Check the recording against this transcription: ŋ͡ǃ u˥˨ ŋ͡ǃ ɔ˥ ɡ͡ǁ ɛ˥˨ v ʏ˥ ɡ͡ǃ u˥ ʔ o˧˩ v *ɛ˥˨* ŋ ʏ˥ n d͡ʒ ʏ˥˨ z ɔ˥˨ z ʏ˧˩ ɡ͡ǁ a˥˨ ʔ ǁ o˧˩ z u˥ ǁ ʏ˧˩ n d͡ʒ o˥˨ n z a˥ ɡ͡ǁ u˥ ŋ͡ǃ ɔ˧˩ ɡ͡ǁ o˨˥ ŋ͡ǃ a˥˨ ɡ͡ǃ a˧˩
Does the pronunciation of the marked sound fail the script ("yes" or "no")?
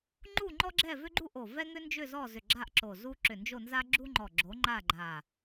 yes